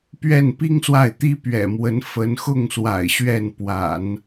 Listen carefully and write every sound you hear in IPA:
p ɥ ɛ˥˩ n p i˥ ŋ s w a˥˩ ɪ̯ t̪ i˥ p ɥ ɛ̰˨˩ m w ə˧˥ n f ə˧˥ n x ʊ˥˩ ŋ s w a̰˨˩ ɪ̯ ɕ ɥ ɛ˥˩ n p w a̰˨˩˦ n

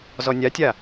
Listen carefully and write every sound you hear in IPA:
z ɔ nʲ a tʲ a

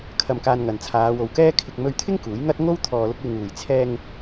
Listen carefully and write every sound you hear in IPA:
kʰ ɐ˧ m k aː˧ n ŋ ɐ˨ n t͡sʰ aː˨˧ w o˨ w k ɛː˥ kʰ ɪ˧ k̚ m ɵ˧ ɥ t̪ʰ ɪ˥ ŋ k uː˨˥ j ŋ ɐ˥ t̚ ŋ o˥ w t̪ʰ ɔː˧ l ʊ˥ k̚ w ɪ˧ ŋ uː˨ j t͡sʰ ɛː˧ ŋ

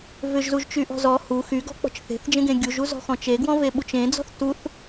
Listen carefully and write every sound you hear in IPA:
v ʏ ʒ z u ʒ t͡ʃ y ʔ ɔ̤ z ɔ h u x y ɡ ɔ̤ k͡p ɔ̤ t͡ʃ θ e̤ θ d͡ʒ ẽ ɡ ẽ ɡʲ u ʒ u z ɔ̤ x ɔ̃ t͡ʃ e ɡ w ɔ̃ v e ɓ u t͡ʃ ẽ d͡z ɔ̤ θ t u θ

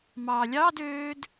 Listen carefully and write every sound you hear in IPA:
m ɑː lʲ ɑː d øː d

